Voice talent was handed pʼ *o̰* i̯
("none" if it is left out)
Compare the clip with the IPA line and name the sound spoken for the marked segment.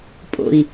o̰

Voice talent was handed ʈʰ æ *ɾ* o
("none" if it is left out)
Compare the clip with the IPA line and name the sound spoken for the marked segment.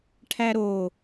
ɾ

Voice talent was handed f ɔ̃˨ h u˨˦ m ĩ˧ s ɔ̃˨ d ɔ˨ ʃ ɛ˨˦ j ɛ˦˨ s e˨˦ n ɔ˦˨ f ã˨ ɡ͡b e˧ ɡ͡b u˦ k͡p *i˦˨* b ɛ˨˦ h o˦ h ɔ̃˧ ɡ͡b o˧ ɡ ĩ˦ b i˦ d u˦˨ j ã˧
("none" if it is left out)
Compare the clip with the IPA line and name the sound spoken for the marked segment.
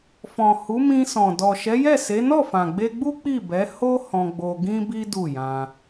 i˦˨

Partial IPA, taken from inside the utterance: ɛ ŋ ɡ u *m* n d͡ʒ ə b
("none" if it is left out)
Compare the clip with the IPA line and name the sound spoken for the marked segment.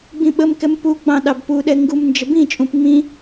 m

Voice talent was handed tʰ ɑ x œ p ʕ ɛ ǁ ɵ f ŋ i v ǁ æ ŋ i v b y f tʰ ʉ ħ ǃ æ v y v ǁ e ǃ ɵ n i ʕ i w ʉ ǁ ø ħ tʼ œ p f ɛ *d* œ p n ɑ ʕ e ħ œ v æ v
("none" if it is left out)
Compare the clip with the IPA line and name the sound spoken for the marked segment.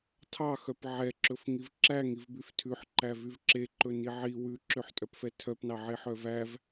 tʰ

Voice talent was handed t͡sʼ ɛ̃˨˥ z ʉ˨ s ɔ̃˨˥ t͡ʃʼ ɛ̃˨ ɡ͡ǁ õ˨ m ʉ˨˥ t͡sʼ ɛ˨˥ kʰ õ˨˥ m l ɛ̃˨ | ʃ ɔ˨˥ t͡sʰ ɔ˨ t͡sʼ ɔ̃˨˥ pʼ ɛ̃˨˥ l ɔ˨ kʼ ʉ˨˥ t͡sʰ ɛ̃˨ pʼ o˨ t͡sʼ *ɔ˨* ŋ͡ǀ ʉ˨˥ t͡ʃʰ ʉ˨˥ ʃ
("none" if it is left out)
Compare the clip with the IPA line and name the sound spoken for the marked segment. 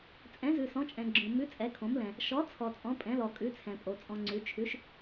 ɔ̃˨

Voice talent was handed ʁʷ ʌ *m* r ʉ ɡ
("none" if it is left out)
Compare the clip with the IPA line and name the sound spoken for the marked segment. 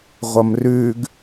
m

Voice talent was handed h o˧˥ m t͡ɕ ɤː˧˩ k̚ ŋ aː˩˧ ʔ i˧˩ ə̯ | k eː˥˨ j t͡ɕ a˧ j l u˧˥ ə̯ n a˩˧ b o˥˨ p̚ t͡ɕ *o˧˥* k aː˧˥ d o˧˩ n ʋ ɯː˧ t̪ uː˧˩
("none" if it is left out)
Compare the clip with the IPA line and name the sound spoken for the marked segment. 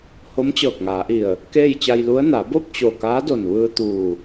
o˧˩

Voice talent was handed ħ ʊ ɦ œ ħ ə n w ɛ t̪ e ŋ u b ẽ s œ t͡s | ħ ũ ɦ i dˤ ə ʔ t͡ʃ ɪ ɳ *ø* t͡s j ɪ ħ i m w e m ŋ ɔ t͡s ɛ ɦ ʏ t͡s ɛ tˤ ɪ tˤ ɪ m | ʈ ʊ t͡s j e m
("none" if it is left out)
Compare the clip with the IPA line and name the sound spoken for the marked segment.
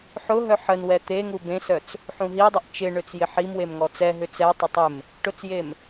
ø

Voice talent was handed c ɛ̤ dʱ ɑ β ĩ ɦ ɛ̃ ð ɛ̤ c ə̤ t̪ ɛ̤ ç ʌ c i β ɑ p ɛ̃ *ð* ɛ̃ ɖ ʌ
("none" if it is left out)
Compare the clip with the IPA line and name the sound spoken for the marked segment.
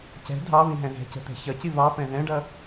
ð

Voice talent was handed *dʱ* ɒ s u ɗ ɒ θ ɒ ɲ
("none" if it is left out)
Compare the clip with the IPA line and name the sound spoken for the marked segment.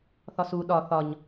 θ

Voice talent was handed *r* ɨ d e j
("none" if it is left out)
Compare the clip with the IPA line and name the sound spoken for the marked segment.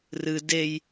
r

